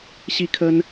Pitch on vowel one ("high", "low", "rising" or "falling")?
high